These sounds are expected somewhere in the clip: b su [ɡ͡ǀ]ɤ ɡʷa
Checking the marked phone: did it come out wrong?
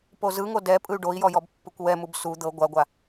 yes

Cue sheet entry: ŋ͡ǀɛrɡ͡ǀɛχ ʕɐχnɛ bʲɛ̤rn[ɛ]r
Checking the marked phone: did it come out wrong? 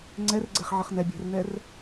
no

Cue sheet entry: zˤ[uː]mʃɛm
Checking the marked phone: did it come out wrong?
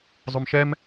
yes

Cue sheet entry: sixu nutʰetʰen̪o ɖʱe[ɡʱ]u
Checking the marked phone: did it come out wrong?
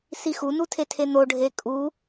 yes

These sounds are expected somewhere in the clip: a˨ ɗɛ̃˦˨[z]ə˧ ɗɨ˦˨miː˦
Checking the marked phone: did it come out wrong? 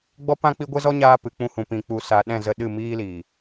no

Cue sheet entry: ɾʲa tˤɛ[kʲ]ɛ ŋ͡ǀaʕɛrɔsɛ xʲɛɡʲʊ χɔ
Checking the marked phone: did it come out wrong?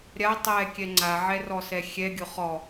no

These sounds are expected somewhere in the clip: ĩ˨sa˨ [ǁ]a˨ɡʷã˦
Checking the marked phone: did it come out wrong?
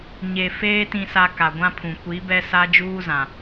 yes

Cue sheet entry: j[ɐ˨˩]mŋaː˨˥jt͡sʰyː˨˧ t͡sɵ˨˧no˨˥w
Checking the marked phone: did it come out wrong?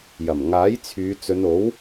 no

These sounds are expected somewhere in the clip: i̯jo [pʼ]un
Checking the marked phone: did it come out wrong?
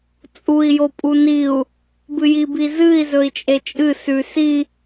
no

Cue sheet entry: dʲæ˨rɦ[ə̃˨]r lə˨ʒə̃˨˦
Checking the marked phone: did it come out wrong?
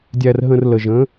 no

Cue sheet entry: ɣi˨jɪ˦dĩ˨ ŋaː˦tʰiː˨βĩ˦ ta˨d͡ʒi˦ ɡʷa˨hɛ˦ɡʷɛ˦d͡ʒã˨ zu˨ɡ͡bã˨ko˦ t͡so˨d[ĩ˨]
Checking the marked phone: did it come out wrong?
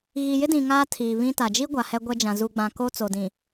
no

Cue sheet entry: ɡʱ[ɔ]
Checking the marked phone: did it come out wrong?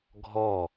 no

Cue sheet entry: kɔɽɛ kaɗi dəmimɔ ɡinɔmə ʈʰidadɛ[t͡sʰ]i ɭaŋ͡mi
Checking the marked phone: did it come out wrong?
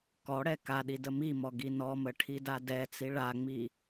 yes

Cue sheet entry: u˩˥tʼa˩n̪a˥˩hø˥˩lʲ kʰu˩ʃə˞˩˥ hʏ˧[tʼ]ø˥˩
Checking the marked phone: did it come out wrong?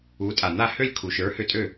no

